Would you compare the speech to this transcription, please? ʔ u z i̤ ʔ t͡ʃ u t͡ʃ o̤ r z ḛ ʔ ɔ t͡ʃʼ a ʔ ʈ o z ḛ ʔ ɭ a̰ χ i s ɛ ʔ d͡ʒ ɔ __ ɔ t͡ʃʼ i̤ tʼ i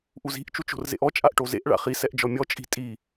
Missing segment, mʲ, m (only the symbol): mʲ